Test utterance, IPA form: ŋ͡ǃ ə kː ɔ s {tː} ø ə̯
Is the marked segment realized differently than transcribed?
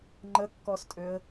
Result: yes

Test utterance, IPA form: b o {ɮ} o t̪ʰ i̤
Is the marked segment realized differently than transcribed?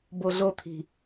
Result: no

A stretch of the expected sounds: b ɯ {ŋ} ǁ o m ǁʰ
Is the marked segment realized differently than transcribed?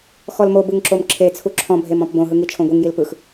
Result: no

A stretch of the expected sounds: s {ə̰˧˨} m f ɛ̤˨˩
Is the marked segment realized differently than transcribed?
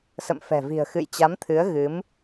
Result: no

